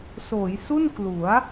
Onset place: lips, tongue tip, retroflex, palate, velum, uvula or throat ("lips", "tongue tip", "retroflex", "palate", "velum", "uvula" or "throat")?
tongue tip